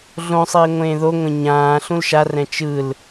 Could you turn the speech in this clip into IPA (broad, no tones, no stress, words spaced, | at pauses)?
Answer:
ɮõsˤiː ŋʷẽːðoŋʷẽ ɲãː ɬũlʃarɛ̃ t͡ʃɯl